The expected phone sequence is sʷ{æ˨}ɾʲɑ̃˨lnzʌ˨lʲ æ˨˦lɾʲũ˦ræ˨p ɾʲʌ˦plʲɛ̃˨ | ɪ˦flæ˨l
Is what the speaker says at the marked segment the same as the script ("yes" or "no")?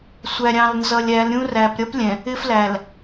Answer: yes